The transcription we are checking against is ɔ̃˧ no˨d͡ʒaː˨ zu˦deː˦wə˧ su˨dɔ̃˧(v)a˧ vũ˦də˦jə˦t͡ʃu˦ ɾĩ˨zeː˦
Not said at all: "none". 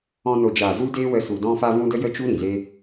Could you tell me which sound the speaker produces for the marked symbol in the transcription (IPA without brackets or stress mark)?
f